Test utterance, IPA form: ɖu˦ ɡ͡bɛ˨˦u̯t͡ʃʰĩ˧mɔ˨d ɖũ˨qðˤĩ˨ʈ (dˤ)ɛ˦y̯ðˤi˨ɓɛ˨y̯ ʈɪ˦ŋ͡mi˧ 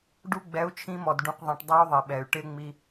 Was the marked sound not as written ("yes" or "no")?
no